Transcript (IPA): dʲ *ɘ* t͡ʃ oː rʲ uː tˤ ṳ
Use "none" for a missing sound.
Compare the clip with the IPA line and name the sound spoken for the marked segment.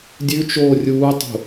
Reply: ʉ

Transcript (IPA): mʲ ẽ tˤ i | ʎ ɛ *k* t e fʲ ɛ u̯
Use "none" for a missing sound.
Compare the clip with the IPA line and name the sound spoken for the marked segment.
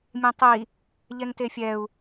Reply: ŋ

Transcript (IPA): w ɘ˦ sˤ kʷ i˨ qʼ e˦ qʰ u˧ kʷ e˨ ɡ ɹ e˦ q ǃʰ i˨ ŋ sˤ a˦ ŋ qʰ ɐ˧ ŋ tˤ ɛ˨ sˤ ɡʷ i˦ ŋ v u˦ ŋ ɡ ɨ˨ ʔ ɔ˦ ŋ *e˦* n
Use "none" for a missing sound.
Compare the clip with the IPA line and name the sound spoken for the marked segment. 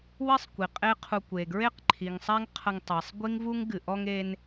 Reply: e˦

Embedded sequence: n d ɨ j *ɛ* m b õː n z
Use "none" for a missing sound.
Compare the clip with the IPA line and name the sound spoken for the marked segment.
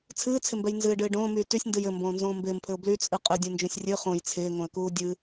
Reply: ɘ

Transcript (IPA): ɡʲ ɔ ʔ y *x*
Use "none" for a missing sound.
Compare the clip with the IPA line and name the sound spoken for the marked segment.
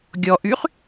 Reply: χ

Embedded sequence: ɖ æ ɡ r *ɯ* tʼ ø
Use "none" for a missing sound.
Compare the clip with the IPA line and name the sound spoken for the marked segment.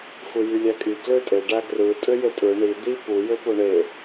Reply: ɯ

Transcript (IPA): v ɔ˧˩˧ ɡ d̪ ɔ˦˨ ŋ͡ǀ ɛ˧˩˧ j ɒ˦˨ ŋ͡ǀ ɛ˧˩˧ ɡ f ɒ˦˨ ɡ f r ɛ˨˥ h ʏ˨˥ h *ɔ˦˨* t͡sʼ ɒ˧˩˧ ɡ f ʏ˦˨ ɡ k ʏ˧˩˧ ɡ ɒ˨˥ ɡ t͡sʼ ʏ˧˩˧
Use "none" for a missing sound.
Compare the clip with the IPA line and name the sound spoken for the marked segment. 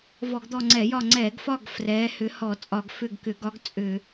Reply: ɔ˧˩˧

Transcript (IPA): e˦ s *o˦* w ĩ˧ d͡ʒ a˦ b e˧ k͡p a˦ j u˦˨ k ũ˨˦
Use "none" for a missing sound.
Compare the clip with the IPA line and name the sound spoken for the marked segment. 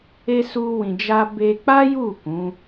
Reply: u˦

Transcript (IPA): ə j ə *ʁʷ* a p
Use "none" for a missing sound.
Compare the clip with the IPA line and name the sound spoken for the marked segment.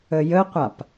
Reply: qʷ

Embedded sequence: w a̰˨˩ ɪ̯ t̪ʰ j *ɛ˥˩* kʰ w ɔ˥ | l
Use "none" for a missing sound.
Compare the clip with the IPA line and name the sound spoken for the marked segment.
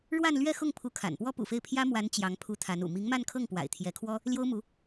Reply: ɛ˧˥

